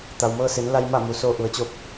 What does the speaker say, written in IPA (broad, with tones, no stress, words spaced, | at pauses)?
t̪a˩wmɤː˧se˩˧nla˧j ma˥˨mu˩˧ soː˧ʔu˩˧ə̯t͡ɕo˧p̚